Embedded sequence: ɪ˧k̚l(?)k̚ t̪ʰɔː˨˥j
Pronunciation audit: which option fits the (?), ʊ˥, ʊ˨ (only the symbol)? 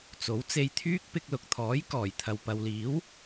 ʊ˨